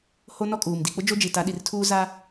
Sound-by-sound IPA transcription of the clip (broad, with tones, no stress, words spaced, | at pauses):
ho˦nɔ˦kʼuː˨m di˨k͡pʊ˦ d͡ʒo˦d͡ʒi˨ta˨˦ ɗi˨rtʰuː˦ za˦